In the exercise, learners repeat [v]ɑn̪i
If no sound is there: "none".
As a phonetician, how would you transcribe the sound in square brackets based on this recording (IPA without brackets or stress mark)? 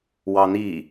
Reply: w